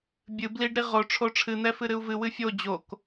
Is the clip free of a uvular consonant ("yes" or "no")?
no